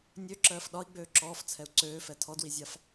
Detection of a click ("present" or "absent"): present